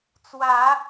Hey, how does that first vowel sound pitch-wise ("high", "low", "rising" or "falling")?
low